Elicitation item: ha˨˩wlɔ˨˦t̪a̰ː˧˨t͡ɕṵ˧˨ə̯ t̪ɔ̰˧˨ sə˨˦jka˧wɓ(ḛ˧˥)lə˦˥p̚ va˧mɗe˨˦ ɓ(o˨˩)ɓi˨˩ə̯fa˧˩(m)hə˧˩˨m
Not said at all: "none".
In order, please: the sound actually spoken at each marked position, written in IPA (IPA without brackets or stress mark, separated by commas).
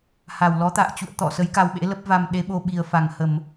ḛ˧˥, o˧, ŋ